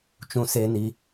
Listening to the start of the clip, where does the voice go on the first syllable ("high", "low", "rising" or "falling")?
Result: high